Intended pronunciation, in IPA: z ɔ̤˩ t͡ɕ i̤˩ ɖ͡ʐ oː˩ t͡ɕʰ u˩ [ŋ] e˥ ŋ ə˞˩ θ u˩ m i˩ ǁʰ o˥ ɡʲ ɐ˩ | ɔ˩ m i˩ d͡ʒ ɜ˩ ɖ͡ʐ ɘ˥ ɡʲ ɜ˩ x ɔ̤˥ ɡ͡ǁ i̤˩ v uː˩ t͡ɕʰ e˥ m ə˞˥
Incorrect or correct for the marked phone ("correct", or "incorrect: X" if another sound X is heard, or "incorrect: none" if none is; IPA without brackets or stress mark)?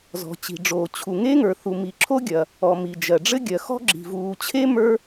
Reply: correct